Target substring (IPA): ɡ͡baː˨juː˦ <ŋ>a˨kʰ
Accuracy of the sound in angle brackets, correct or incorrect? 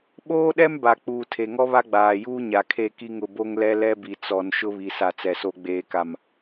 incorrect